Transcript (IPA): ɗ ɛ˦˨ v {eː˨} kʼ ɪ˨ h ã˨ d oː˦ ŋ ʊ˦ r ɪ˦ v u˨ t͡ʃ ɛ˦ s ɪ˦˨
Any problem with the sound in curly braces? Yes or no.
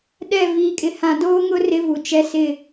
yes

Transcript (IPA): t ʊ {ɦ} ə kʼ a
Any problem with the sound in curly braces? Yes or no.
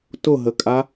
no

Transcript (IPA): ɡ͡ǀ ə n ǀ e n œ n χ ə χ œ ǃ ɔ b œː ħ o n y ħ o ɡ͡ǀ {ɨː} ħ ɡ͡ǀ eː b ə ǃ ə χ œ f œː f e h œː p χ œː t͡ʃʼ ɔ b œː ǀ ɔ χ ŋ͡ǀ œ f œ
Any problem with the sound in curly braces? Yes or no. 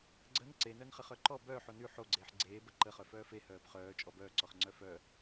yes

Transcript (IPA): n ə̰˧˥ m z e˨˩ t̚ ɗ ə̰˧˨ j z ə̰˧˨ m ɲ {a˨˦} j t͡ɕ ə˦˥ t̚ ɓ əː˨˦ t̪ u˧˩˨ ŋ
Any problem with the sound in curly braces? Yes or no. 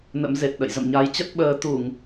no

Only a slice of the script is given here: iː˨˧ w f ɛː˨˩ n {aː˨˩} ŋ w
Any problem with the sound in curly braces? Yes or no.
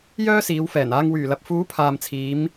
yes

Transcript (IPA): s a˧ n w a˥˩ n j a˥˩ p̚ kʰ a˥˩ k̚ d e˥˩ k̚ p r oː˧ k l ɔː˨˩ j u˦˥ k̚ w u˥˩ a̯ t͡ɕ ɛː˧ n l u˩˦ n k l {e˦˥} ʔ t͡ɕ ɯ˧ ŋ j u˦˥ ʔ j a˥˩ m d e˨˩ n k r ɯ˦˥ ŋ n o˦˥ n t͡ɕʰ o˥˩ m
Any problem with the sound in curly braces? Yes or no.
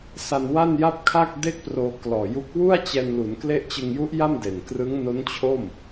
no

